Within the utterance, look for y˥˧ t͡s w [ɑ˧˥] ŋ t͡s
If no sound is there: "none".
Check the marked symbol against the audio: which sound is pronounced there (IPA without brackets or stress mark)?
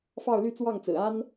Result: ɑ˥˩